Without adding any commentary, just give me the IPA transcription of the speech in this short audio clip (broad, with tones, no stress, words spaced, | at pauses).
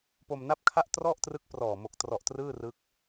po˧mna˥˩p̚kʰa˥˩ʔ trɔ˥˩ʔtrɯ˦˥k̚ prɔː˨˩mo˨˩k̚ trɔ˨˩ʔ trɯː˥˩rɯ˦˥k̚